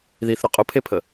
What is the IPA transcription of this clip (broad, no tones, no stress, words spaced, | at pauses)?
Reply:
ðiθɾʊ qʼʊpʰepʰə